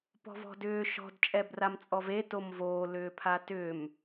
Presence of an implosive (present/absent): absent